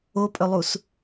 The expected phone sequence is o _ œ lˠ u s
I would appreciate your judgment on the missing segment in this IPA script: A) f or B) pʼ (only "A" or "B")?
B